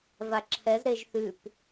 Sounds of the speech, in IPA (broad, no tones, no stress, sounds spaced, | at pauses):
v a ǁʰ ɛ z ɾ e ʒ θ ʉ p